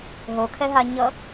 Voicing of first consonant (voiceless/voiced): voiced